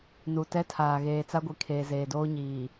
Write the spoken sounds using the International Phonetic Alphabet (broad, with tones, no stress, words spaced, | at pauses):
nu˨tɛ˦tʰaː˨ ɣeː˨t͡sa˦ɡʷi˨kʰeː˨ zeː˨doː˦ɲiː˨